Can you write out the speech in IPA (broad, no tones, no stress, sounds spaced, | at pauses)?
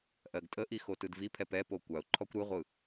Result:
ʔ ɜ ɡ tʼ ə ʔ i x o t ɯ d v i pʰ ɛ p ɛ p o kʷ a ʊ̯ ǃʰ ɔ kʷ ɾ ɯ ʁʷ ɯ